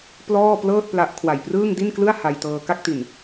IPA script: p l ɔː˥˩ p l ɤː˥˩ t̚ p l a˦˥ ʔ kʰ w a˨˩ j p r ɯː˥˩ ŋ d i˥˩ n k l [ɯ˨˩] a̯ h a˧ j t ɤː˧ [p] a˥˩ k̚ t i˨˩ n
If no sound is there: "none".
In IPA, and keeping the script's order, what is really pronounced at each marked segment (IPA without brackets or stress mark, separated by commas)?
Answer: ɯ˥˩, k